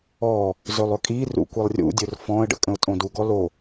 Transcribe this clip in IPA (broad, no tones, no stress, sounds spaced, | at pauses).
ɔ | z ɵ lˠ ɵ kʼ i r ṵ kʷ i lˠ rʲ ṵ dʲ ɵ r f ɔ̃ ə̯ ɖ ə̰ kʼ ə̃ ʊ̯ tʼ õ d u ɡ ɔ l o